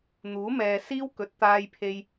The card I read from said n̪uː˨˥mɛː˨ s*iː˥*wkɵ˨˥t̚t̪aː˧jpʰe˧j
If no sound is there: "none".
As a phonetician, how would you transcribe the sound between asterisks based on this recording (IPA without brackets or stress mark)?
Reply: iː˥